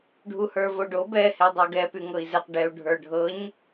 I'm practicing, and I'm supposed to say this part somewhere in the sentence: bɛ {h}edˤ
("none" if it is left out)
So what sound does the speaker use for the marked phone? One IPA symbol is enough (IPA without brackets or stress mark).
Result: h